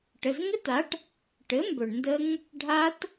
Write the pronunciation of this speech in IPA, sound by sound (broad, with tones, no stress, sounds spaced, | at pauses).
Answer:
ʈ ə˩˧˩ z ŋ ɘ˦˥ t a˩˥ ʈ | ʈ ɘ˩˥ m b ɵ˩ ɳ n d ə˦˥ ŋ | ɖʱ a˦˥ t